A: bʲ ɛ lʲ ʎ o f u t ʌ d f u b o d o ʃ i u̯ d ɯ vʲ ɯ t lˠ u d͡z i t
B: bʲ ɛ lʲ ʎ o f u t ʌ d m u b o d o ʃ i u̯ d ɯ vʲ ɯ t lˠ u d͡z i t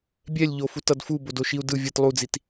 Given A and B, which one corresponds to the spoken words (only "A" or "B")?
A